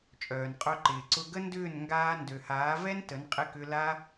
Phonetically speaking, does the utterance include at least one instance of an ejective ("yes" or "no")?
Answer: yes